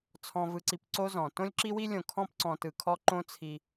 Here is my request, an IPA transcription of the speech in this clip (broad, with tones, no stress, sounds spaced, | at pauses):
t͡sʰ ɔ̃˨ v ɯ˨ ǀ i˨ p ǀ o˦ z ɔ̃˨ t õ˦ lʲ ǁ i˦ w i˦ lʲ õ˨ kʰ ɔ̃˦ p ǀ ɔ̃˨ t ɯ˨ kʰ ɔ˦ ǃ õ˦ t͡sʰ i˦